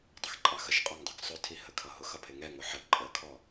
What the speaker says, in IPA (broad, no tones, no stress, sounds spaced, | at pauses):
dˤ ɪ x ǃʼ ɑ x ə ʃ qʼ ɒ ŋ dˤ ə ɡ sˤ ʊ tʰ i h ə kʰ ʌ ɦ ʊ x ʌ pʰ ɪ ŋ ɛ ŋ ʊ ħ ə ǃʼ ə kʰ ɔ